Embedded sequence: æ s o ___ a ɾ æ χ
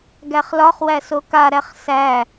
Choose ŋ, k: k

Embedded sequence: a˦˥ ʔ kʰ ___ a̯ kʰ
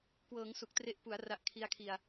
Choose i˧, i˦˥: i˦˥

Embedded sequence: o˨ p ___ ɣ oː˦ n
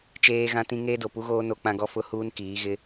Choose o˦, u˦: u˦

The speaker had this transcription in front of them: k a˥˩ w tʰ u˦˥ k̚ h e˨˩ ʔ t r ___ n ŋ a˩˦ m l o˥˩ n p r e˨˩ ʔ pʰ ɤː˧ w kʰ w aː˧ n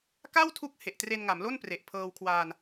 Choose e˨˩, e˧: e˧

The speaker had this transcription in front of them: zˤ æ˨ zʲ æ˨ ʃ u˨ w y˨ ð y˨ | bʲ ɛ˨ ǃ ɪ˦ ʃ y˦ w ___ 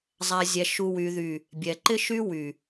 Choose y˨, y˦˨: y˨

